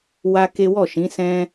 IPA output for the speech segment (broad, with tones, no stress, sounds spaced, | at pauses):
w a˦ k e˦ w ɔ˦˨ ʃ ĩ˨˦ s ɛ̃˦